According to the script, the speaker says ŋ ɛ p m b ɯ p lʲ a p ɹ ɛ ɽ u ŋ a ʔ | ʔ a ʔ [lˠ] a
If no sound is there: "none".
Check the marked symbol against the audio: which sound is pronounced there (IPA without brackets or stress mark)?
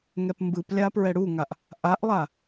lˠ